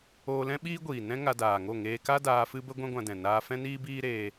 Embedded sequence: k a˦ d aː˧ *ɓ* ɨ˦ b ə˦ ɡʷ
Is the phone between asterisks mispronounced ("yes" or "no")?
yes